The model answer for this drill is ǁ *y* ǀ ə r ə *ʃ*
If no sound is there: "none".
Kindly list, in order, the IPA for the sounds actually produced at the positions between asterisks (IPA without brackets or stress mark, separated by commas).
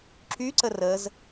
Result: y, z